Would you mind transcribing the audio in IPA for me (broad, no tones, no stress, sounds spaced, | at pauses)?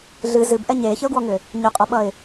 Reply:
ɮ ɨ z ɨ b ʔ ɛ ɲ eː ç ə ʊ̯ ɡ w ɔ ŋ ʏ | ɲ ʏ qʼ ʌ ɓ ʌ ɪ̯